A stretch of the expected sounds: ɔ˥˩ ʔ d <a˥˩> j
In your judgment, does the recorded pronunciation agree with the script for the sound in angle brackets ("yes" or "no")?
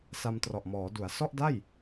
yes